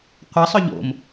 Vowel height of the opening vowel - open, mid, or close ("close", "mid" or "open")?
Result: open